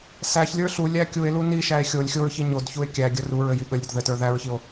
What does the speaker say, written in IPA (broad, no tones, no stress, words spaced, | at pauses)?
sæçlʲə˞ ɬu lʲækʲue̯lu niʃæe̯ xʲolʲ xʲoɹçi ɲodçue̯ kʲæɡʲə ruɹɘ jiɠəlʲɾʲəd ðɘtə˞ ðæɹçio̯